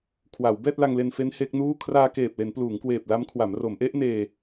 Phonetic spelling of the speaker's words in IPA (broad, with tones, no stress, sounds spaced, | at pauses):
kʰ w a˩˦ w b ɛː˥˩ t̚ l a˧ ŋ l e˧ n f e˦˥ n h e˦˥ k̚ n uː˥˩ kʰ r aː˧ k eː˨˩ p̚ l e˩˦ n p l uː˩˦ ŋ k w eː˨˩ p̚ l a˦˥ m kʰ w a˩˦ m r o˩˦ m ʔ e˦˥ ʔ n eː˧